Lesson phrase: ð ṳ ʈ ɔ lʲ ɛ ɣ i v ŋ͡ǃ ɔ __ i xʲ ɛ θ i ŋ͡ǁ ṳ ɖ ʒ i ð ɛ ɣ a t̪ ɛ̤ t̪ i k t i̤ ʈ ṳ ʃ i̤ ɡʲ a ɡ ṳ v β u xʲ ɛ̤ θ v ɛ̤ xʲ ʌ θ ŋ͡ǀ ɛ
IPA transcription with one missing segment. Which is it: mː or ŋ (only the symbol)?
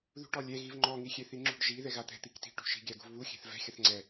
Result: ŋ